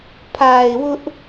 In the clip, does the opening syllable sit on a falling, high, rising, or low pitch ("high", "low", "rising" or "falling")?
low